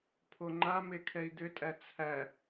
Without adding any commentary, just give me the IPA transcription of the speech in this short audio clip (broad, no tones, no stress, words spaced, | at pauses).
pʰoŋ͡ǃame kʰɛi̯d̪ʏtʼæ t͡sʰæ